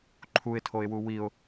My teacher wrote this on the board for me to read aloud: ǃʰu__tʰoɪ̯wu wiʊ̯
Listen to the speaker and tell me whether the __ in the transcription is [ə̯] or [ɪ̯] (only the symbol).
ɪ̯